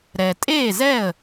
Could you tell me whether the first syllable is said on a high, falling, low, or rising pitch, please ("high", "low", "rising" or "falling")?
low